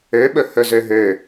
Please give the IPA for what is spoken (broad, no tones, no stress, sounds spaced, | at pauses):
ø ɓ ɵ h ɵ z ø ɦ ø